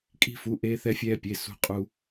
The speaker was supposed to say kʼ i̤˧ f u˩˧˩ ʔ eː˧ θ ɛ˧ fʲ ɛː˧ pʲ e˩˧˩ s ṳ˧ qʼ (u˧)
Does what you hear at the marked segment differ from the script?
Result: no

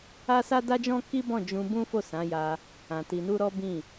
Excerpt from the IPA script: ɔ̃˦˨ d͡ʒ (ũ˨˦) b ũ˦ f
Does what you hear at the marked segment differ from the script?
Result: yes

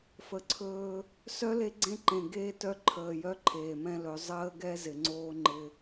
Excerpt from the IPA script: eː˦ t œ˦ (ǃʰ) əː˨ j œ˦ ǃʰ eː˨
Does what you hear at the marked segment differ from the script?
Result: no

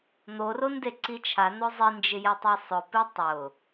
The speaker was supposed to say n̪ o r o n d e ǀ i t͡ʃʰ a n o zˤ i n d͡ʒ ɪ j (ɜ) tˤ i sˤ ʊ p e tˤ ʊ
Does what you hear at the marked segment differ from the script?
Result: yes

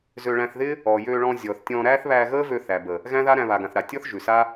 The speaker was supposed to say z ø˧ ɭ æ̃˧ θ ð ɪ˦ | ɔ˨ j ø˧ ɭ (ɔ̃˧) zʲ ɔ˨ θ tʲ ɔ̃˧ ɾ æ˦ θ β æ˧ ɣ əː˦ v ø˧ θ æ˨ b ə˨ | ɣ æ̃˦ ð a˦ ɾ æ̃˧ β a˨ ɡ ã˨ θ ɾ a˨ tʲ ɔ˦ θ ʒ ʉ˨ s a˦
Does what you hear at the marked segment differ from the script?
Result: no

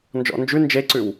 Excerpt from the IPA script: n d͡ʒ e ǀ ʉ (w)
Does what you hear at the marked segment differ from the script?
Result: no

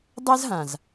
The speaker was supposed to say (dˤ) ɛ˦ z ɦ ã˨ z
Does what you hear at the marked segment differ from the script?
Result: no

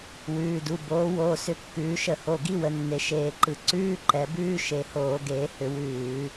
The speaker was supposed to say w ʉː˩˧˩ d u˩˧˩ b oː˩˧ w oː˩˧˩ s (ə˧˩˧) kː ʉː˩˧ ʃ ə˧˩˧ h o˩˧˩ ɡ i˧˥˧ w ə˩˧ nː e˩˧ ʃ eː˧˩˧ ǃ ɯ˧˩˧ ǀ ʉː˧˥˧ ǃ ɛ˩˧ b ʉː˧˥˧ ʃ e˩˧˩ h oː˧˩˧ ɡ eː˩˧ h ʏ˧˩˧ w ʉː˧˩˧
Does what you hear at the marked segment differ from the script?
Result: yes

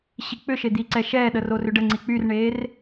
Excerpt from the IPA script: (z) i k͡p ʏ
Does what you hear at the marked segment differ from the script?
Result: yes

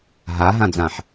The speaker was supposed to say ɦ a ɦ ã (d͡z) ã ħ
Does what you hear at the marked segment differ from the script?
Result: no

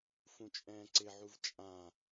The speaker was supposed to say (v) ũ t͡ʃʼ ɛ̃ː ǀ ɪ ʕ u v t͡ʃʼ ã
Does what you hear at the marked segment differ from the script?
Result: yes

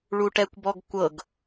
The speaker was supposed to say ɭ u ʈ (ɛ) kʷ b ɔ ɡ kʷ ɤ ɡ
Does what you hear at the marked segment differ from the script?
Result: no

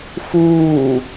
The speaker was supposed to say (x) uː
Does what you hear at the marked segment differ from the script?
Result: no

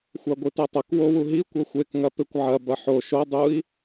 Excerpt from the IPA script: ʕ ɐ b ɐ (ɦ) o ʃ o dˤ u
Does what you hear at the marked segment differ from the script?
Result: yes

